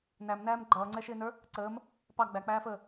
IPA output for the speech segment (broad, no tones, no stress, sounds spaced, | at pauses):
n æ m n æː m ɡ͡ǃ ʌː ŋ͡ǀ ɛ ʃ ɪː n ə˞ | ǀ əː m | p ɑ ɡ͡b æ k͡p æː f əː